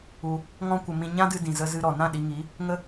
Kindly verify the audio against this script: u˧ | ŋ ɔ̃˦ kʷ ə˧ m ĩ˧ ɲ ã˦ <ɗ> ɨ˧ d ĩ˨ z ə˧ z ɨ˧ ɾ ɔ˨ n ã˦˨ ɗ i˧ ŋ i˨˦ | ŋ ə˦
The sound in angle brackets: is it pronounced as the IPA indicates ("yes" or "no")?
no